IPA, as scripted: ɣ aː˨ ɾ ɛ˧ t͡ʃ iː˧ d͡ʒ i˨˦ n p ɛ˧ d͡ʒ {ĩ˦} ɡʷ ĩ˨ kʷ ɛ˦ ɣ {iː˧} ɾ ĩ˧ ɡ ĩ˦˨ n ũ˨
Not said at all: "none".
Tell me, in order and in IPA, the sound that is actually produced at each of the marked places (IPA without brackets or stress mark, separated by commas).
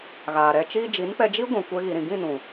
i˦, i˧